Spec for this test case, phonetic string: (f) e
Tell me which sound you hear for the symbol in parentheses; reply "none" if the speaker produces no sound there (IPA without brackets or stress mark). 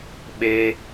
ɓ